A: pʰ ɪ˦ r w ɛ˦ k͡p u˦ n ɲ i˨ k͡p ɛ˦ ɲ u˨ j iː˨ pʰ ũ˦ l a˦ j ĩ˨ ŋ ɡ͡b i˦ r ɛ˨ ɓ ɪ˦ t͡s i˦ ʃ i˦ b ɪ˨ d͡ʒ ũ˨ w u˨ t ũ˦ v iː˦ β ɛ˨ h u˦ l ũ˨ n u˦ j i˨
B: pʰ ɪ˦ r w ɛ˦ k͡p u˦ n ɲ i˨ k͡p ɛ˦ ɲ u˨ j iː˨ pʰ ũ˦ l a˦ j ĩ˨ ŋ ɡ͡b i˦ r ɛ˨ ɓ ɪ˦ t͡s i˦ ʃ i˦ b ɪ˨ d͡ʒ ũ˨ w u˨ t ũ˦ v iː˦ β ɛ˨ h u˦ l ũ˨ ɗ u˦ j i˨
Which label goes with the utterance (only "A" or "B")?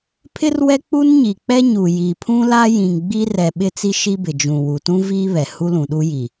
B